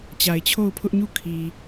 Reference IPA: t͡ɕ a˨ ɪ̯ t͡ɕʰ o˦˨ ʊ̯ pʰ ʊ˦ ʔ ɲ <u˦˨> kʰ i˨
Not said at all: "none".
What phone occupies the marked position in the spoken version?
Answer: u˦˨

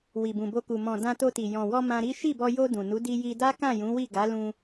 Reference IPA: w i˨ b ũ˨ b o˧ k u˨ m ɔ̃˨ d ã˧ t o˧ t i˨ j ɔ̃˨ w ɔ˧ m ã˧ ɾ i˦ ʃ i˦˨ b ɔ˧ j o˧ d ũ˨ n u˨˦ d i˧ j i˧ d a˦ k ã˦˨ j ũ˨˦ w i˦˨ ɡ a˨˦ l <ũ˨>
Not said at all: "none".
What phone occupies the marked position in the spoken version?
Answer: ũ˧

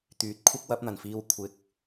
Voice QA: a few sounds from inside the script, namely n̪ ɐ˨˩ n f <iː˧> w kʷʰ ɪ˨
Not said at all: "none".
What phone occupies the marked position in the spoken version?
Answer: iː˧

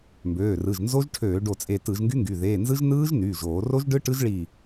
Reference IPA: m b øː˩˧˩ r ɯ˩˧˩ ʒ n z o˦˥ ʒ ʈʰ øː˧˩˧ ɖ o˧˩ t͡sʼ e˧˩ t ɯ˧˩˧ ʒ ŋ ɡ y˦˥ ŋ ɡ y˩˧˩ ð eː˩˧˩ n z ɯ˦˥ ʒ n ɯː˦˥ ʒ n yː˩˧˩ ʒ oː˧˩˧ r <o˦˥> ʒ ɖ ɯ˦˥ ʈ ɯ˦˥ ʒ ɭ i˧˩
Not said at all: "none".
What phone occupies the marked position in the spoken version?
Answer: o˦˥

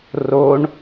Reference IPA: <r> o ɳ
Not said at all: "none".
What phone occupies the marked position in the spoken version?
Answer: r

